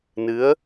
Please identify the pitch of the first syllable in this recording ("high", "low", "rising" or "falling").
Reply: rising